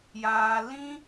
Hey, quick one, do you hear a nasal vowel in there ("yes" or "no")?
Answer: yes